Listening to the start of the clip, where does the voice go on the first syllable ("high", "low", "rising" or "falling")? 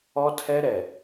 high